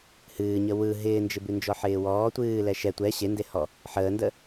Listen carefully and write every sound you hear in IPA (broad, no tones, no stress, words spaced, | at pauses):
hɨːɲə wɯ ɦɪːnd͡ʒɪbʉ nd͡ʒɔħɪːwɔː tʷɨː lɛʃɛ tʷɛ ɕendehɔ | ħəːndə